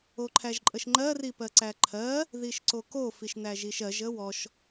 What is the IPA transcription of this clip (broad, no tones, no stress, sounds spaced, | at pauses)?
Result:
o ǃʰ æ ʒ ǃʼ ə ʃ ŋ͡ǃ ɜ r i p ɜ ǀ æ ǃʰ ɜ | ð i ʃ ǀ o k o f i ʃ n æ ʒ i ʃ ɜ ʒ ə w ɔ ʃ